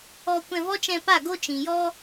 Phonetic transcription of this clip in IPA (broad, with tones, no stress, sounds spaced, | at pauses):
ɔ˧ kʷ ɛ̃˧ v ɔ˦ t͡ʃ ɛ̃˧ p a˦˨ ɡ o˦ t͡ʃ ĩ˨ j ɔ˦